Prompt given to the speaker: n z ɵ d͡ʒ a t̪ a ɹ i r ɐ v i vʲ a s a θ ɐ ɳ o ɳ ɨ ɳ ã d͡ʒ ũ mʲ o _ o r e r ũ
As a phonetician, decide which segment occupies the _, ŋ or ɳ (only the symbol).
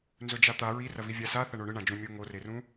ŋ